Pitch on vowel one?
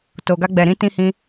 low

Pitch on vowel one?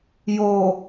low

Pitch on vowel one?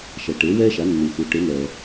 low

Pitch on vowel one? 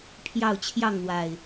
falling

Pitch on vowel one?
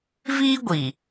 high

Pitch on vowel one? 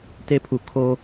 high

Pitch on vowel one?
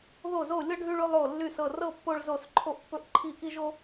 falling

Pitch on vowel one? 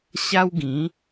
high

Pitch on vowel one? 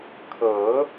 rising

